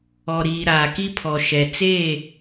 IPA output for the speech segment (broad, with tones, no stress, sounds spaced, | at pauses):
ɔ˨ ɾ iː˨ ɾ aː˨ k i˦ pʰ ɔ˨ ʃ ɛ˨ t͡s eː˦˨